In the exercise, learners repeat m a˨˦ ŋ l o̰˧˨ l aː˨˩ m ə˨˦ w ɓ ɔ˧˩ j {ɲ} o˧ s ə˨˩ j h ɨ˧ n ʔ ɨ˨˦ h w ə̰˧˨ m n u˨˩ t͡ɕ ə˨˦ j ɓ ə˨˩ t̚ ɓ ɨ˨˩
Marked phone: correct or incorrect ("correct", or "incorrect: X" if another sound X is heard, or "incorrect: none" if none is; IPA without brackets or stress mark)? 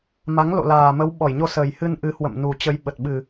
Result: correct